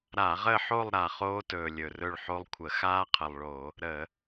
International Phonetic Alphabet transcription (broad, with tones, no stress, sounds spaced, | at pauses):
ɾ a˧˩˧ ʁ ə˦˨ ħ o˦˨ lˠ ɾ a˨˩ χ oː˦˥ t ɵː˨˩ lʲ ɵ˨˩ r ɵ˦˨ ɭ ħ o˦˥ lˠ kʷʰ ə˧˩˧ x aː˦˥ qʰ ə˨˩ lˠ ɭ o˧˩˧ | ɾ ə˧˩˧